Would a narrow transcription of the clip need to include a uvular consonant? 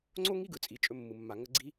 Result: no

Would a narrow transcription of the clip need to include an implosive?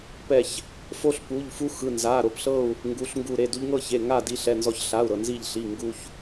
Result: no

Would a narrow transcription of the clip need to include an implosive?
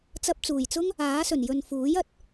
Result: no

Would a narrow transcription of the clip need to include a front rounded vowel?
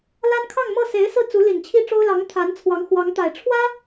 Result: no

